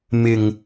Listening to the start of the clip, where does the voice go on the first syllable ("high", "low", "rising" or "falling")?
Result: low